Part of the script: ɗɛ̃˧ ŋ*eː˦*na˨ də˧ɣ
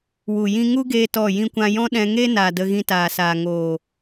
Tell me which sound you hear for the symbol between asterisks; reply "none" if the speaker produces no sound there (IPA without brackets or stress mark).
e˦